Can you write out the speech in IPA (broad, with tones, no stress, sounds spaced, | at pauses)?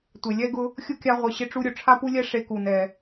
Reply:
tʷ e˩ lʲ ɛ˥ ɡ ʊ˦ | xʲ ʊ˥ kʲ a˦ ʁʷ ɪ˨ ɕ ɪ˦ ʈ͡ʂ u˦ ɾʲ ʊ˩ ʈ͡ʂʰ a˥ p u˥ lʲ ɛ˥ ʂ e˦ k u˨ n ɛ˨